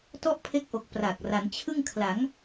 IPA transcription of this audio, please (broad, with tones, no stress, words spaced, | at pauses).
tɔ˥˩ʔpʰe˦˥k̚ʔo˨˩k̚ pra˨˩k̚ ra˩˦nt͡ɕʰɯ˥˩ŋkʰla˩˦ŋ